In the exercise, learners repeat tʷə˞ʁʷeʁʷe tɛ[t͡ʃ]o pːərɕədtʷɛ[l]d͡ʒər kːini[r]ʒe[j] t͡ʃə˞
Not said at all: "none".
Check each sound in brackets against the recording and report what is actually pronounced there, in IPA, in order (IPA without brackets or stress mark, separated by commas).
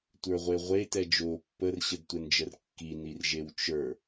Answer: d͡ʒ, n, r, w